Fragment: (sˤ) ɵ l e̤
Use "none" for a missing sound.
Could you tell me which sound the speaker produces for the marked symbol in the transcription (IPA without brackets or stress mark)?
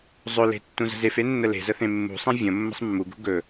zˤ